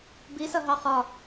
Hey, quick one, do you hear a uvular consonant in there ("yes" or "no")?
yes